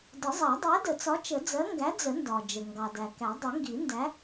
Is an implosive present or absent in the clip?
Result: absent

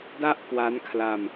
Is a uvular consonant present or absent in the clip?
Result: absent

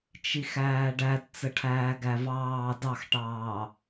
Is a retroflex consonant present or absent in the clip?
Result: present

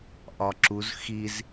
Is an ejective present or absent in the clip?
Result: absent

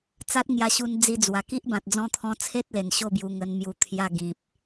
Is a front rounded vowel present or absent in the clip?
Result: absent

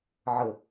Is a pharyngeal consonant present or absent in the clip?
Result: present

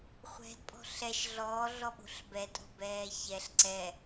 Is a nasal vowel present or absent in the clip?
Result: absent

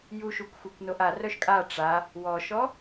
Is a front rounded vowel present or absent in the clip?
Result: present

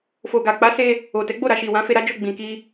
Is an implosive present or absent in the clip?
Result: absent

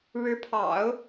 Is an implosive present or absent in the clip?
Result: absent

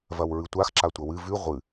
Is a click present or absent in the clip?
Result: present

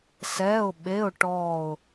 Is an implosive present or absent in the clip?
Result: present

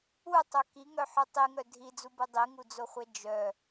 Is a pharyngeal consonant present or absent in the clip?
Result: present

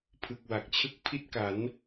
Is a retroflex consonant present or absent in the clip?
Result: absent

